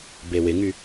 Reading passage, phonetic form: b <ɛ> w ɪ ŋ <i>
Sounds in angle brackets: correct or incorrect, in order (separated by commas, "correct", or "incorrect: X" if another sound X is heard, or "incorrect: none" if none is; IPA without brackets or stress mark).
incorrect: e, incorrect: y